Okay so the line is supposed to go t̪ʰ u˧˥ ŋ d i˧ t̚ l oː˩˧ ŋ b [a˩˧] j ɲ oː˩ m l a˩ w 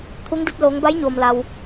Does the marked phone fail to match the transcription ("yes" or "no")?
yes